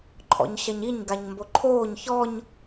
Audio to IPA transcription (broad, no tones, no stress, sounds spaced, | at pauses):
ǃʰ ɔ̰ ɲ ɕ ɐ ɲ i ɲ ɡ a ɲ m b o ǃʰ oː ɲ ç ɔ ɲ